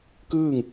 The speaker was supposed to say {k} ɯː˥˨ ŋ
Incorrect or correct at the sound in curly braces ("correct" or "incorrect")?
correct